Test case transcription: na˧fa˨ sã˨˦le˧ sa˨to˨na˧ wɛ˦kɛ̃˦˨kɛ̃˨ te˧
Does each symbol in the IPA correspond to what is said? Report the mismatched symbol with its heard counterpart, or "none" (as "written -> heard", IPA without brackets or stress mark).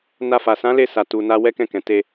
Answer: o˨ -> u˨